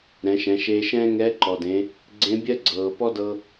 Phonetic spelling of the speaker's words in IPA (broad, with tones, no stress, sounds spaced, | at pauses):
ɾ ɛ̃˩˧ ʃ ɛ̃˩˧ ʃ eː˧ ʃ ɛ̃ː˥ ŋ ɛː˧˥ ǃ ɔ˩ d ẽ˩˧ | ɡ͡ǀ ẽ˧˥ bʲ ɜ˥ ɡ͡ǀ ɤː˩ p ɔ˥ d ɤ˧